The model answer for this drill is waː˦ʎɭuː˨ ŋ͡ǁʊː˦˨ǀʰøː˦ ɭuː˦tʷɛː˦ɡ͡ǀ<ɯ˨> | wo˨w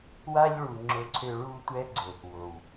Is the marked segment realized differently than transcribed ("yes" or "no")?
yes